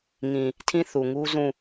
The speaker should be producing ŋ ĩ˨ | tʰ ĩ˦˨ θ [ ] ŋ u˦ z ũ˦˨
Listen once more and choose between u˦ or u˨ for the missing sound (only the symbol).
u˨